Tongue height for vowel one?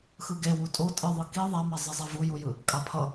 high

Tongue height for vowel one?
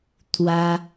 low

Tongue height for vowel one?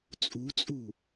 high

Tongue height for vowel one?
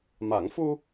low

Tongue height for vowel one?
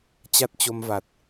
low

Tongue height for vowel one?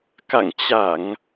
low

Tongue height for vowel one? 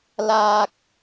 low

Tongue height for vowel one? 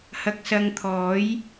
low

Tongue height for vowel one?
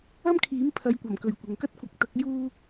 low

